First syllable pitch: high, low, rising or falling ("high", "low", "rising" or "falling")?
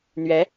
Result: rising